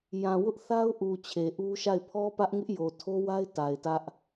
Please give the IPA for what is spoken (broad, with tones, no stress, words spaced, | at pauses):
jã˨wʊ˦ʔθa˦ʊ̯ʔu˨ t͡ɕʰe˨ʔu˦ʃa˦˨ɪ̯ pʰɔ˦pä˦ʔŋɪ˦ʔ jo˨tʰo˦wa˦ɪ̯ ta˨ɪ̯tä˦ʔ